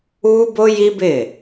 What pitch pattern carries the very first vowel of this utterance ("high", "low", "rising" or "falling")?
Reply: high